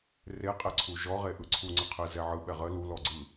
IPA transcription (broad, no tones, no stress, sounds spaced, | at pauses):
r e qʼ e ǀʰ u ʒ ɔ ʁ e ʔ ɯ ǀʰ u ŋ͡ǀ ə qʰ ɯ z ɛ ʕ ɯ ɓ ɛ ʁ ə l u l ɔ ɡ͡ǀ ɯ